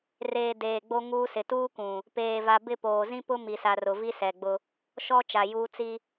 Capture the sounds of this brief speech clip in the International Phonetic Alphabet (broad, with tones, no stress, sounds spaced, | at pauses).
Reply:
r eː˨ d eː˨ ɡ͡b o˦ ŋ uː˦ s ɪ˨ t uː˦ kʷ ũ˨ | p eː˨ v a˨ b ɪ˦˨ p oː˨ z ĩ˦ p ʊ˦ m i˨ s a˨ r ʊ˨ v i˦ s ɛ˨ ɡ͡b ʊ˦ | ʃ ɔ˦ t͡ʃ a˨ j uː˦ t͡s i˦